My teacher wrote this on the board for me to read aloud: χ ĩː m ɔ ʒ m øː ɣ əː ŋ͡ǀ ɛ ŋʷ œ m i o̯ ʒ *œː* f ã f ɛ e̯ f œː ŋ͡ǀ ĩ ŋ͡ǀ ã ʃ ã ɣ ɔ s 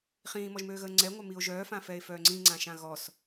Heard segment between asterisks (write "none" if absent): œː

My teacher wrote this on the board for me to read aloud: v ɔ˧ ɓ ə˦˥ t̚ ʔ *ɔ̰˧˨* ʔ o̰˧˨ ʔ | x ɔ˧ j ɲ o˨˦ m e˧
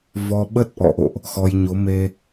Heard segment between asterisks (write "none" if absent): ɔ̰˧˨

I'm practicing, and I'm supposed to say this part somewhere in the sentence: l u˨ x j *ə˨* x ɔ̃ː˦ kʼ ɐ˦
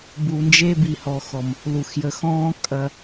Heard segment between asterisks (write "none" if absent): ə˨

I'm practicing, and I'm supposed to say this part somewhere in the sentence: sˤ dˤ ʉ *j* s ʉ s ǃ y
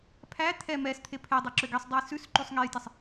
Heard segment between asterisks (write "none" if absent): j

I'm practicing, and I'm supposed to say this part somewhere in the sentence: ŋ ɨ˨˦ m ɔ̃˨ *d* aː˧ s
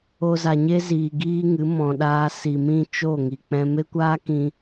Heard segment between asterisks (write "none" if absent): ɗ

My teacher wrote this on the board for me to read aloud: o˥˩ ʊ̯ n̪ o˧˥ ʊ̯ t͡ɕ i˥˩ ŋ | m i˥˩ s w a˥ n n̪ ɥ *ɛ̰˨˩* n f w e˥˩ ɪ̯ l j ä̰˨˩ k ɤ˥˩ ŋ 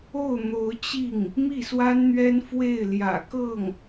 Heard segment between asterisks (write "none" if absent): ɛ˥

